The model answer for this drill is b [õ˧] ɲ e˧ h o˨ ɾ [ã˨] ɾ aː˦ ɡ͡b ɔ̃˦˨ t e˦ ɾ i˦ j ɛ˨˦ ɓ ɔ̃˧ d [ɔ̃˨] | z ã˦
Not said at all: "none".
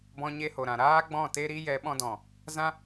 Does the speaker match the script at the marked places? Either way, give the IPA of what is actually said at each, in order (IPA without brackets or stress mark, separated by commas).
ɔ̃˧, ã˨, ɔ̃˨